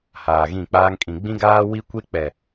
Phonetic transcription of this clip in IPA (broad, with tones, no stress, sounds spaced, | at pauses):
h aː˨ ɣ ĩ˦˨ k͡p aː˦ ŋ kʼ ĩ˨ ɡ͡b ĩ˦ ɡ aː˦ w i˦ kʷ e˦ k͡p ɛ˨